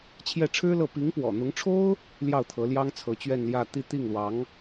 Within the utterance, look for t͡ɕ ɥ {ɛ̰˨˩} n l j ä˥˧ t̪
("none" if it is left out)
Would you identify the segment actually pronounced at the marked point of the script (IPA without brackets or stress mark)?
ɛ˥˧